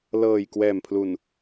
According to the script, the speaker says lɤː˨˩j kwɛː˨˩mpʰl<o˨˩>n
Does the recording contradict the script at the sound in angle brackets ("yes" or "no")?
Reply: yes